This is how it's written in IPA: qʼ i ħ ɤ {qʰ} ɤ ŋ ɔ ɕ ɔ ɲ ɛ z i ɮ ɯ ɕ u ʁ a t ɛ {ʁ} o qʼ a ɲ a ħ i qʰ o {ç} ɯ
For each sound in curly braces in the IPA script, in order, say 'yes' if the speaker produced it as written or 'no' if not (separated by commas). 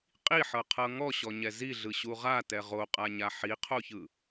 yes, yes, yes